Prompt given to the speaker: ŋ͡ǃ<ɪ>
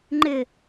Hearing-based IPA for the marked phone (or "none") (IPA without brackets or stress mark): ɪ